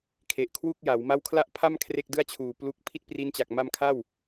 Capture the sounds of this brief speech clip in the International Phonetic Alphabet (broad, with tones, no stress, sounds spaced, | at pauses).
kʰ e˨˩ ʔ kʰ w u˥˩ k̚ j a˩˦ w m a˥˩ w kʰ l a˥˩ ʔ pʰ a˥˩ m kʰ r e˥˩ k̚ d ɯ˥˩ a̯ t͡ɕʰ uː˨˩ p l u˦˥ k̚ pʰ i˥˩ t̚ p r i˦˥ n t͡ɕ a˨˩ k̚ m a˧ m kʰ a˥˩ w